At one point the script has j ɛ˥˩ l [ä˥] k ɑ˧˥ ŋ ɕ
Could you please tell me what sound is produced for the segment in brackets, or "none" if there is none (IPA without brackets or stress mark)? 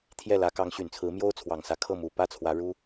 ä˧˥